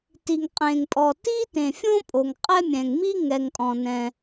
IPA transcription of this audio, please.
ti˩ŋqʼẽ˩ŋpʼɔ˩ ti˥tẽ˩fʲõ˥ pʼo˩ŋqʼɛ˥mʲɛ̃˩ŋ mi˥ŋɛ˩ŋkʼɔ̃˩ nɛ̃˩

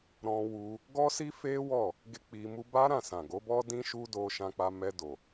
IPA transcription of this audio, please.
ɾɔ̃˧wu˧ | ɡɔ˦si˦fe˦ wɔ˦˨ | ɡe˦k͡pi˧mu˦ ba˦ɾã˦˨sã˨ ɡo˨˦bɔ˦ dĩ˦ʃu˦do˧ ʃã˧k͡pa˧mɛ˧ do˨

